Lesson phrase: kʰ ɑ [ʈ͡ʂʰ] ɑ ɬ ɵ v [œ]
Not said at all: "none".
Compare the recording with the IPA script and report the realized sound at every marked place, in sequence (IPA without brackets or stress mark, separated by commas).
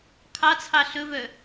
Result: t͡sʰ, œ